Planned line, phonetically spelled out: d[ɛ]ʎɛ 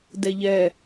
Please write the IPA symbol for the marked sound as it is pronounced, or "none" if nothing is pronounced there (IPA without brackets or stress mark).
ɛ